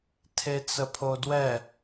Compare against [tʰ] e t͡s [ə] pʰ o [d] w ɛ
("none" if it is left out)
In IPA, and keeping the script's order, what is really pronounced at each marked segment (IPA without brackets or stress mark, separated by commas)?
tʰ, ə, d